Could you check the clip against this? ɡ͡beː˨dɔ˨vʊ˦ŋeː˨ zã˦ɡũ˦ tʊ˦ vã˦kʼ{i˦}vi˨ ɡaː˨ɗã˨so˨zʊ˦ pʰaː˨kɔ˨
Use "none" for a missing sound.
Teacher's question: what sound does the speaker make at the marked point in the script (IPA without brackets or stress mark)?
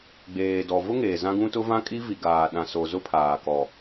i˦